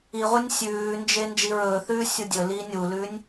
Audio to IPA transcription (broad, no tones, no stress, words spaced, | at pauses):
iʁʷɨnʲ sʲʉːnd͡ʒe nd͡ʒiɹɵːθʉː sʲudʲɵliː nʲulʉːnʲ